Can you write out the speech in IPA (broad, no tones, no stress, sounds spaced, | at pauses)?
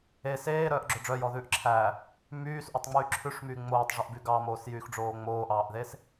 e s eː ɾ œː ʔ ɡ͡ǁ o ɖ͡ʐ œ j ɔ ð ʉː ʔ ǁʰ æ | m yː s ʔ o tˤ ŋ͡m yː ǁʰ ʉ ʂ m yː ŋ͡m oː tˤ ʐ ɵ ʔ b y ɡ ɑ m oː s j yː x ɖ͡ʐ oː ŋ͡m oː ʔ ɑː ʔ ð e s